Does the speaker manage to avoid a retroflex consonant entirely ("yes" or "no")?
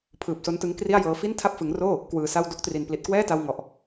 yes